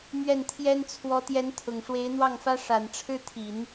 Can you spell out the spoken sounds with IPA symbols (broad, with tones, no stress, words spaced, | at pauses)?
mɥɛ˥˩nt̪ʰjɛ˥n t͡sʰwɔ˧˥t̪jɛ˧˥n t̪ʰʊ˨˩ŋʂwe˧˥ɪ̯n̪wɑ˥˩ŋfä˥ ʂa˨˩nʈ͡ʂʰɻ̩˥t̪ʰi˨˩˦n